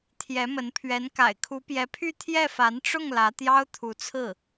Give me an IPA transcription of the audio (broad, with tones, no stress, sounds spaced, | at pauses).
t̪ʰ j ɛ˧˥ m ə˧˥ n pʰ ɥ ɛ˧˥ n k a̰˨˩ ɪ̯ kʰ u˧˥ p j ɛ˧˥ pʰ y˥˧ t̪ʰ j ɛ˥˩ f a˧˥ n ʈ͡ʂ ʊ˥˩ ŋ l ä˧˥ t̪ j ɑ˥ ʊ̯ t̪ʰ u˧˥ t͡sʰ ɹ̩˥˩